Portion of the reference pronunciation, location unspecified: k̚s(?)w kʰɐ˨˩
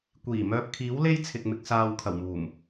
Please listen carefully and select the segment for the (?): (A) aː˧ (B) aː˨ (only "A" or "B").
B